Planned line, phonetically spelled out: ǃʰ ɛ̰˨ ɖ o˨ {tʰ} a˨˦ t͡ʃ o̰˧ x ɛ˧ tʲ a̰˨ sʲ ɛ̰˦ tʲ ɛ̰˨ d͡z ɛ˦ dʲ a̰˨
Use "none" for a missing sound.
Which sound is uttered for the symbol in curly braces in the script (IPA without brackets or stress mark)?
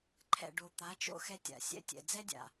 t̪